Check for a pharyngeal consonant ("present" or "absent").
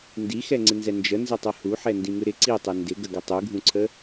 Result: present